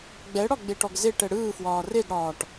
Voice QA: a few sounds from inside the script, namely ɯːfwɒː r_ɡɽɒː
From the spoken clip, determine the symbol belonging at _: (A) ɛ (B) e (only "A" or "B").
B